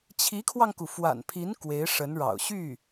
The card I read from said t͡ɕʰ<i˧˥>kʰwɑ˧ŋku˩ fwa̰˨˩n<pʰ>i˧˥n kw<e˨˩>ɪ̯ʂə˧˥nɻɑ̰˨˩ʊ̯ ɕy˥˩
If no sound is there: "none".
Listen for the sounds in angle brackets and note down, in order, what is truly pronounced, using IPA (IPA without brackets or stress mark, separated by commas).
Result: i˧˥, pʰ, e˧˥